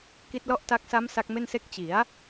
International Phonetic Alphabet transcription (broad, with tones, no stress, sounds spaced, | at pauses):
k i˦˥ t̚ l ɔ˥˩ ʔ t a˦˥ k̚ s a˦˥ m s a˦˥ k̚ m e˥˩ n s e˥˩ k̚ t͡ɕ i˩˦ a̯